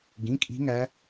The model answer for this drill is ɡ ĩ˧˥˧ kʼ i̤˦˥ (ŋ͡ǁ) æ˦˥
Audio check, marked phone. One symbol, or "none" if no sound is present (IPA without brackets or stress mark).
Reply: ŋ